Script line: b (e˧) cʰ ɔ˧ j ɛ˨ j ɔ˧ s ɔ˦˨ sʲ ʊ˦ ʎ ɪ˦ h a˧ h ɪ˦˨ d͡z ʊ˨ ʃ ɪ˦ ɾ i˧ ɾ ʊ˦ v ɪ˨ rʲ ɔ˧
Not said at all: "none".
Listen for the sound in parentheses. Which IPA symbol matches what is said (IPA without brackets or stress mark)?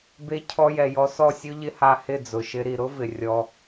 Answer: e˧